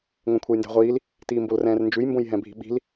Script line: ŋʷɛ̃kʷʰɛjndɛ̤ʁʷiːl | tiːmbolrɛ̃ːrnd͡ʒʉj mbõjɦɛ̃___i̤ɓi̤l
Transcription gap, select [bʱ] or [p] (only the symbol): bʱ